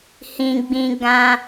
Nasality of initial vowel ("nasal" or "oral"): nasal